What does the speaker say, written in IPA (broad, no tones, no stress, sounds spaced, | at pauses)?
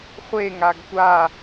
χʷ e ŋ a ɡ tʷ a